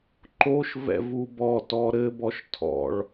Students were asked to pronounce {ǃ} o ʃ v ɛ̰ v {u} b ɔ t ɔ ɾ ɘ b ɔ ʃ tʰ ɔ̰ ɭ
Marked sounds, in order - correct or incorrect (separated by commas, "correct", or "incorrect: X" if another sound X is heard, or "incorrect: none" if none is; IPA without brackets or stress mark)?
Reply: correct, correct